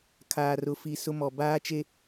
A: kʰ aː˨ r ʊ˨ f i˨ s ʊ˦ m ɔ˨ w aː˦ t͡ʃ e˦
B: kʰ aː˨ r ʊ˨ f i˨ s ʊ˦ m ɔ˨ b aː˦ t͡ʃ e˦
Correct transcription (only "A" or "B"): B